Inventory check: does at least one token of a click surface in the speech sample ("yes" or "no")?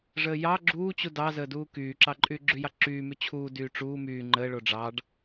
yes